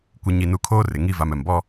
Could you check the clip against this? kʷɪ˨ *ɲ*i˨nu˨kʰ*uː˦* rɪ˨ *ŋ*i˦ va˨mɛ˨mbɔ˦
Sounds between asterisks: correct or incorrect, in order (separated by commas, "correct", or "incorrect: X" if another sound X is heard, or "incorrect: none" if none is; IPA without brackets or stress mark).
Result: correct, incorrect: oː˦, correct